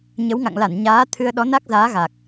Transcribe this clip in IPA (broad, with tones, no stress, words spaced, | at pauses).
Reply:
ɲə˨˦wŋa̰˧˨ŋla˧˩n ɲaː˨˦ t̪ʰɨ˧ə̯ɗɔ˨˦na˦˥k̚zaː˨˦ ɣa˨˩k̚